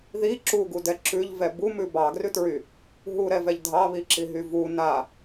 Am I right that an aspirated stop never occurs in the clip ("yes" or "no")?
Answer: yes